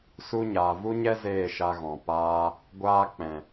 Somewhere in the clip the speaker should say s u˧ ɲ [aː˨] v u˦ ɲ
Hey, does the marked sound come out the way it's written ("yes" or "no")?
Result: yes